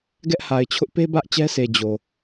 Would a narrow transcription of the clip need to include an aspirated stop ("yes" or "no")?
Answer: yes